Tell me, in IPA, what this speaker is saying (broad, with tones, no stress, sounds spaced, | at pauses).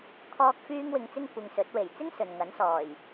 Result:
kʰ ɔː˥ k̚ f yː˥ ŋ w ɪ˧ ŋ t͡s ɪ˥ ŋ kʷ ɪ˧ ŋ s ɵ˨˥ t̚ w e˨˩ j t͡s ɪ˥ ŋ s ɵ˨ n ŋ ɐ˨˥ n s ɔː˨˩ j